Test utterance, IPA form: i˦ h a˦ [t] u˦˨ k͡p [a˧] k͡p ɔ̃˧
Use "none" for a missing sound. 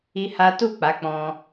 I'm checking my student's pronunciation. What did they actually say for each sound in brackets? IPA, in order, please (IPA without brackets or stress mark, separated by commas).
t, a˨˦